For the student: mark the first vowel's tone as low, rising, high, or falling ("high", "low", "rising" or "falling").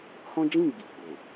high